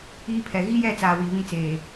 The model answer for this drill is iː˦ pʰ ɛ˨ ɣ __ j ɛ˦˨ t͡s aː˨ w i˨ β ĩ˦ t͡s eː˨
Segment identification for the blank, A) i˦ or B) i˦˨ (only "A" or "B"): A